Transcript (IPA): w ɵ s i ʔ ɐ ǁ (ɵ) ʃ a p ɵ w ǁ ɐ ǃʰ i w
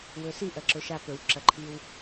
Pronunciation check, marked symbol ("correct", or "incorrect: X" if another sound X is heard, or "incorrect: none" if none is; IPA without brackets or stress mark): correct